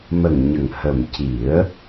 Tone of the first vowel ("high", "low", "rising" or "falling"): low